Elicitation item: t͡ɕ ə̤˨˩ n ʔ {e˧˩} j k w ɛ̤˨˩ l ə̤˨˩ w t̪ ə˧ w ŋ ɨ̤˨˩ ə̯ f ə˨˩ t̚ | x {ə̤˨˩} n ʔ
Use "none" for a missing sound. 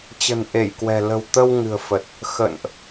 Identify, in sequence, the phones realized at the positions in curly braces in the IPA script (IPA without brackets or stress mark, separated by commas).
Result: e˧˩, ə̰˧˨